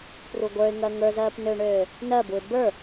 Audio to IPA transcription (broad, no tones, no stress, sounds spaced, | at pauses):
p r u ɡʷ ə˞ ɪ̯ ŋ ɜ ŋ ə˞ z ɜː p n ø ɳ øː | n ɜ b u ɪ̯ b ə˞